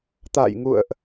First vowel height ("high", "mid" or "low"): low